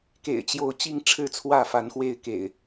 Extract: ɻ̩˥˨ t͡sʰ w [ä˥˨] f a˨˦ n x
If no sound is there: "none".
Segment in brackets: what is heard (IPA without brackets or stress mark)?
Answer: ä˥˨